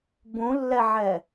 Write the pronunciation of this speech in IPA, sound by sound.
bũlːɛʕɛ

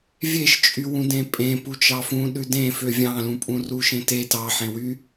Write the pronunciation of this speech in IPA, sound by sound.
vʲeʃt͡ʃʼywũ dẽpʼẽpu t͡ʃɑfũ ɗʉdẽ føvʲɑ̃lũpʼũ ruʃẽtet ɑħẽwy

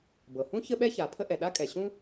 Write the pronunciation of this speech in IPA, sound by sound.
bɤ˩hũ˥ çə˥ɓɛ˥ça˩ pʰə˥ʔɛ˩ ɗa˥kʼɛ˩ ɕũ˥

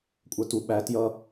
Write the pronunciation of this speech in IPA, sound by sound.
kʷʼə˞tu ɓæ tjʌ

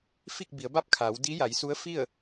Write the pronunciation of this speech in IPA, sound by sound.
fi˥˨k̚bi˩˧ə̯ba˥˨p̚kʰaː˩˧w di˧˥ja˩˧jsu˧˥ə̯ fi˥˨ə̯

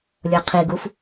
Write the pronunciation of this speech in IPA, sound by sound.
lʲoqʰiɡuf

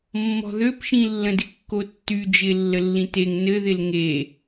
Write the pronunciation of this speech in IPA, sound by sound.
mːɔ̤ðøpʃĩ lːə̃dɪkːotːy d͡ʒɪ lːəlːĩteŋ nɘðɪl ŋe

